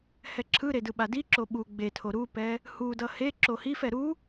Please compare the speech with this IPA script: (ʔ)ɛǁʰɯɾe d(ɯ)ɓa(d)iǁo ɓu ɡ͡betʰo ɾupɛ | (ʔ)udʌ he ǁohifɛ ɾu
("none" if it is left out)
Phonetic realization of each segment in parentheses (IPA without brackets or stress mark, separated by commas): h, ɯ, d, h